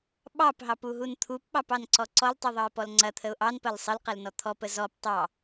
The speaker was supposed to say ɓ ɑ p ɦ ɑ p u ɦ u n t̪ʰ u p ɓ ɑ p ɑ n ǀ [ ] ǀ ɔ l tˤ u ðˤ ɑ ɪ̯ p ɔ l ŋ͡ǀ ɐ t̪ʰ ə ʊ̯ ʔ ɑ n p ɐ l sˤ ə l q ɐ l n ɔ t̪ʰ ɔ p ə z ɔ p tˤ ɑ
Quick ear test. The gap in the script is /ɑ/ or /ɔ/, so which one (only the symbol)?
ɔ